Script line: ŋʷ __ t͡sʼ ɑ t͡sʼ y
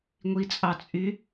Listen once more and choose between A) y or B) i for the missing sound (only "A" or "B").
B